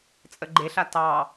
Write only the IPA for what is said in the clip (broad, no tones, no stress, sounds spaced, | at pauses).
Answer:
t͡sʼ ə ɡ͡ǃ e ɬ a t ɑ